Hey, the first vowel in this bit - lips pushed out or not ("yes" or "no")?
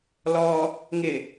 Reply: yes